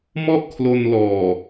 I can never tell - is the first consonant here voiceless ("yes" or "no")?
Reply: no